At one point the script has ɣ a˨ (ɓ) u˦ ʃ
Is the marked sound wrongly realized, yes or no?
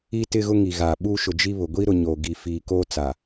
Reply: no